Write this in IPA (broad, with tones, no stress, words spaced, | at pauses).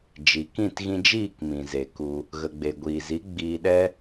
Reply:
d͡ʒi˨kĩ˦˨t ɣĩ˧d͡ʒiː˦˨kmĩ˨ze˨ ku˧ | ɣə˨ɡ͡be˨ ɡʷiː˨zi˨˦ ɡ͡biː˧ɗɛ˦